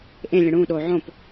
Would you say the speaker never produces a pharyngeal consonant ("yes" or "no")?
no